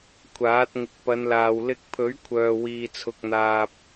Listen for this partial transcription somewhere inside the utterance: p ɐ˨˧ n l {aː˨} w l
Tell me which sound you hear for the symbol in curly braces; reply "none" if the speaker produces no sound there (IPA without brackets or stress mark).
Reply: aː˨